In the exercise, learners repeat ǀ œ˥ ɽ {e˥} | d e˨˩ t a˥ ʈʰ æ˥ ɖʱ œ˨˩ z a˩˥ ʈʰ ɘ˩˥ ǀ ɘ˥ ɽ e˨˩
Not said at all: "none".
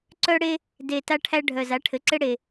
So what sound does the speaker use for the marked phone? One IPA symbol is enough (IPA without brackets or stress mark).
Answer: e˥